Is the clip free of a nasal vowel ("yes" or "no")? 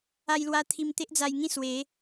no